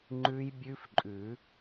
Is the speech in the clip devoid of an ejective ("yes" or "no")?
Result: no